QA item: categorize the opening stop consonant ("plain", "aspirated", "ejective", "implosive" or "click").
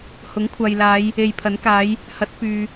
aspirated